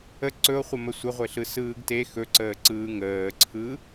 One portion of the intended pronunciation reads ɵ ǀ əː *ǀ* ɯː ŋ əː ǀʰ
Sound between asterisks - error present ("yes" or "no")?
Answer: no